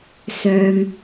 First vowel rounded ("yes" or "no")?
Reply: yes